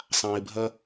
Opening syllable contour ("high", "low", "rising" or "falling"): low